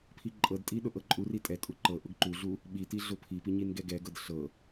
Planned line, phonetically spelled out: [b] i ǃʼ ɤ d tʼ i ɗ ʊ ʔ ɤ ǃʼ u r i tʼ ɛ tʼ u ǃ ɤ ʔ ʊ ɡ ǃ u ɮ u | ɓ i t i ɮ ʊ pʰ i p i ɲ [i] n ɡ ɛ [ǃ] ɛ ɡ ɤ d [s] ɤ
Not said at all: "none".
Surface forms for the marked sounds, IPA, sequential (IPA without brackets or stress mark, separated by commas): pʰ, i, ɡ, ɬ